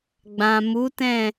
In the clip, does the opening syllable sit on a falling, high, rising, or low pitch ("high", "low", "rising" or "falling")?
low